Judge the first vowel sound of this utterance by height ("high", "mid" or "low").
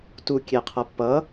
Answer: high